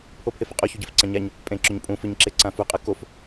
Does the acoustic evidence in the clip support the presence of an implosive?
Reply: no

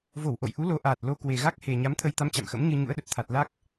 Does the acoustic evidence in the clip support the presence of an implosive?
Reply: yes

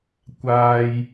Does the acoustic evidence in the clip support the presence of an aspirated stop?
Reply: no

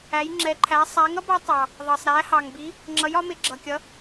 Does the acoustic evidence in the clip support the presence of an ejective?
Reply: no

